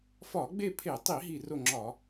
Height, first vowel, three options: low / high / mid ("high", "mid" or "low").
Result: low